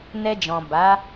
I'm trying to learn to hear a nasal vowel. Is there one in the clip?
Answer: yes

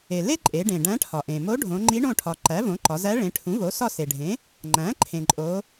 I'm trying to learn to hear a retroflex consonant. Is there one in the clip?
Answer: yes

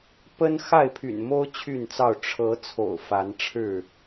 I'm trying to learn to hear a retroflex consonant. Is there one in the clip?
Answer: yes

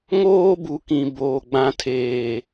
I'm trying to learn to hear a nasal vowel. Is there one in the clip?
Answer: yes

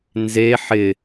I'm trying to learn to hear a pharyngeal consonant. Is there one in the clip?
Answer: yes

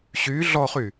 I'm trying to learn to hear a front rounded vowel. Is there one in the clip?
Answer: yes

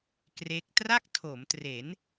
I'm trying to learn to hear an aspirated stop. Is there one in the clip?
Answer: yes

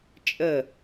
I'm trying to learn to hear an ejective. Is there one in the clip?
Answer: yes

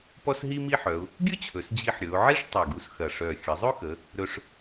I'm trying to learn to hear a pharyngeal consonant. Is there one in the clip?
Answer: yes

